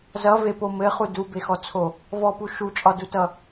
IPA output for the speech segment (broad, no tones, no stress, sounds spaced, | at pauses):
z ʌ v e p o m ɘ χ u d u b e x ɔ t͡sʰ o | v ɔ p u ʃ u t͡ʃʼ ɒ d u t ʌ